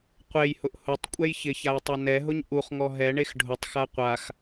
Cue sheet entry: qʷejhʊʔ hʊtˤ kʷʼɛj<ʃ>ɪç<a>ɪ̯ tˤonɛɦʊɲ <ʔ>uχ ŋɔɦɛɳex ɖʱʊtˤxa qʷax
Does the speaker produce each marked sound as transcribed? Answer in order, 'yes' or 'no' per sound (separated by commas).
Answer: no, yes, yes